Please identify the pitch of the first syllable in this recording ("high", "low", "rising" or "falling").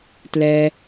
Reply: high